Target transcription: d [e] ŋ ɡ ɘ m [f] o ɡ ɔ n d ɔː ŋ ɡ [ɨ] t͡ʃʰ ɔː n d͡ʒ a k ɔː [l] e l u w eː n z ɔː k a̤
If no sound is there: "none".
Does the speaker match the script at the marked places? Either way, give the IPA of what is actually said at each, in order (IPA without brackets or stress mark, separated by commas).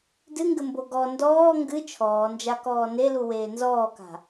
ɨ, b, ɨ, n